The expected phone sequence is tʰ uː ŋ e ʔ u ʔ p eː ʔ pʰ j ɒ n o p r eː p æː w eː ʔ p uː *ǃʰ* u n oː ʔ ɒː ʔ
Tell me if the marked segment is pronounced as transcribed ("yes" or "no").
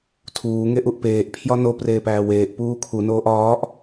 no